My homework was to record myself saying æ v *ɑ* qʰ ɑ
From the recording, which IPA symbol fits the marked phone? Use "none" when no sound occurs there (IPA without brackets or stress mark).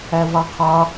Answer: ɑ